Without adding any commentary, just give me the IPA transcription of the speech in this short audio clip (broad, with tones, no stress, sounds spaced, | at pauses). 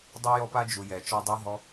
dˤ œ˧ j ɔ˧ p a˧ d͡ʒ u˨ j ɛ˨ t͡ʃ ɔ˧ dˤ a˦ ɦ ɔ˦